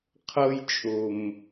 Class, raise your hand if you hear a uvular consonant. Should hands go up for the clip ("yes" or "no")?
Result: yes